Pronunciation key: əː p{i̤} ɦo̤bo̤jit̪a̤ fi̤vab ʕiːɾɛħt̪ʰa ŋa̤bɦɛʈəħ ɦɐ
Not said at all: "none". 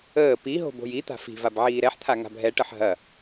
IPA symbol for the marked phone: i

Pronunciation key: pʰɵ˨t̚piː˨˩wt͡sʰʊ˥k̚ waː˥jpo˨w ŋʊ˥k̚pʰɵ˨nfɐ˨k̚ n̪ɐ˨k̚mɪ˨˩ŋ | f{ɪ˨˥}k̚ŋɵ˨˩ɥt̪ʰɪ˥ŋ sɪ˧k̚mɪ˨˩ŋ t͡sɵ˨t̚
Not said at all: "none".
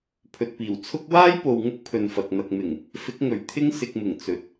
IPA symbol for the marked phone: ɪ˨˥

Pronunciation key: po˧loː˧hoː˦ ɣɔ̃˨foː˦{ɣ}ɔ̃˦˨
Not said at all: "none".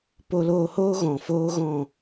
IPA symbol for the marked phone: ɣ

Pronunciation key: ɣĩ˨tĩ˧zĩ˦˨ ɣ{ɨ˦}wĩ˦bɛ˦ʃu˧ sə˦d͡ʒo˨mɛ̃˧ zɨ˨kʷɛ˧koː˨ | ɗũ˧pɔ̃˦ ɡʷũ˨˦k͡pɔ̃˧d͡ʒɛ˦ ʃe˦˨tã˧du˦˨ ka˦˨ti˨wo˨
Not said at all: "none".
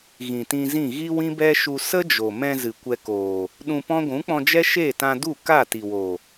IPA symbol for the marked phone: i˦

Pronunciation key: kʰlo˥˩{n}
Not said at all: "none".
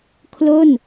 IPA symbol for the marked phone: n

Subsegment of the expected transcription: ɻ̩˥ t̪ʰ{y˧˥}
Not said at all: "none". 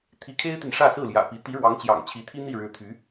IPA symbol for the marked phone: y˧˥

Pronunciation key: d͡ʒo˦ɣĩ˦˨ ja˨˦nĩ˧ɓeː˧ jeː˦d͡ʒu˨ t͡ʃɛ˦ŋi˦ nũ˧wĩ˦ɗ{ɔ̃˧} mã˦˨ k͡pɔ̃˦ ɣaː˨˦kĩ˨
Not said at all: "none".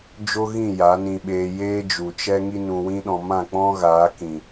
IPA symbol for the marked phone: ɔ̃˧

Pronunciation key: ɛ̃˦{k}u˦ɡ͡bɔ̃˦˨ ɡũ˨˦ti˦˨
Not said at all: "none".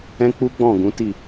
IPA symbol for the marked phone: k͡p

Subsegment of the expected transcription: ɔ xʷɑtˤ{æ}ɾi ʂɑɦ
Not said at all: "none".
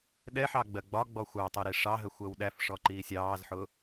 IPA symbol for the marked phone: ɜ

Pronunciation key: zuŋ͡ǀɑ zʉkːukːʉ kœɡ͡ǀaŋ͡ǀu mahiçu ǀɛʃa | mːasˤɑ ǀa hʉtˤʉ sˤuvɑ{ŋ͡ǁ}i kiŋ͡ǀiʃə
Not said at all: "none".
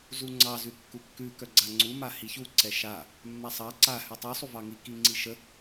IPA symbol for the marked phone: ŋ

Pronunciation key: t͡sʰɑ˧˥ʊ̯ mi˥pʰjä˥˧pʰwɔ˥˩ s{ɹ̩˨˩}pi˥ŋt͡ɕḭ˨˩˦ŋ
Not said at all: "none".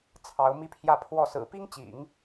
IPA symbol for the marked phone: ɹ̩˨˩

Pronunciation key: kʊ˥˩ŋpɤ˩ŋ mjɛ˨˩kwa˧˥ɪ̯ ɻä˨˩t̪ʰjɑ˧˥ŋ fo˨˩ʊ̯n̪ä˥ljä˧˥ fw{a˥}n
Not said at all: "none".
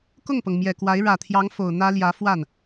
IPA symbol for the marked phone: a˥˩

